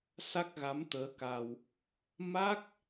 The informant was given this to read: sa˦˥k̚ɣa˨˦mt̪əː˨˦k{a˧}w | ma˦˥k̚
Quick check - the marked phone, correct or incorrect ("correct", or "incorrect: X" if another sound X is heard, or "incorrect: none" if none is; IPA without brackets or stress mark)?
correct